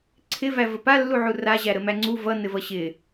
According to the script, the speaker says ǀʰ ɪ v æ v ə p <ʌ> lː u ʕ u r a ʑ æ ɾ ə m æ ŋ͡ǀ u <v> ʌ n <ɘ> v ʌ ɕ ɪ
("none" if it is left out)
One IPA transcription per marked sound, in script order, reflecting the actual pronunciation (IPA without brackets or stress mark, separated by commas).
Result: a, v, ɘ